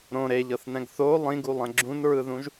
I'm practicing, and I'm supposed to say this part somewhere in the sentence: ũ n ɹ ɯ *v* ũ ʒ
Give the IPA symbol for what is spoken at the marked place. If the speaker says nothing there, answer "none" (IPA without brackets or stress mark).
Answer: ð